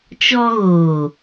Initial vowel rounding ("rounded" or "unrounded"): rounded